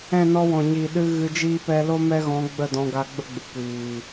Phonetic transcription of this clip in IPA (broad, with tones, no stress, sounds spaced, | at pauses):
ɛ̃˦˨ n ɔ˧ w ɔ̃˨ ɲ i˨ ɗ ɨ˧ ɣ ɨ˧ d͡ʒ iː˦ p ɛ˦ l o˦ m ɛ˦ ɣ ɔ̃˨˦ ɡ͡b ə˦˨ d ɔ̃˧ ɡ a˧ ɡ͡b ə˦ ɡ͡b ɨ˨ kʷ iː˨